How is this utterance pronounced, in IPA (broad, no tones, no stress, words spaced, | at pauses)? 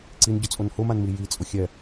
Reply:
ǀinɟʊt͡sʼon hʊmanmi jit͡sʼʊ xʲɛ